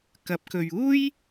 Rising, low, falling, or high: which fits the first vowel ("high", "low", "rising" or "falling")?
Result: rising